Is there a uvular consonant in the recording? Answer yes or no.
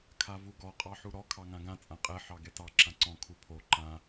yes